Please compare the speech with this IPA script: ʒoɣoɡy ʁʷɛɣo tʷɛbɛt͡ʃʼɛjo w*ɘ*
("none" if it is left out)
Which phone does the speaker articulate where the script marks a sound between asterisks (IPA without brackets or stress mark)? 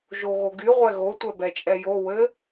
ɘ